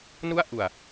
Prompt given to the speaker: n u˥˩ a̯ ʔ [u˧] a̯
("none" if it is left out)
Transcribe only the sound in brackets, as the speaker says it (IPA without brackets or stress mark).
u˨˩